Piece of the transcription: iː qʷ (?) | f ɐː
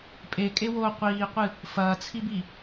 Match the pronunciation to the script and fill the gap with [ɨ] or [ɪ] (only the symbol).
ɨ